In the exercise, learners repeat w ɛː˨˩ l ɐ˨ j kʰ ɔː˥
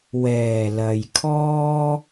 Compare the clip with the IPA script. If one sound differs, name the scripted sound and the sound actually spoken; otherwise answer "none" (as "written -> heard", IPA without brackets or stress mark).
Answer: none